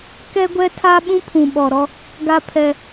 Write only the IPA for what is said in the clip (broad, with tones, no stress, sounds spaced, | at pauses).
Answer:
k ɛ˦ ɡʷ ɛ˦ tʰ a˦ ɓ ũ˦ pʰ ũ˨ ɓ ɔ˨ ɾ ɔ˦ | ɡ a˦ pʰ ɛ˦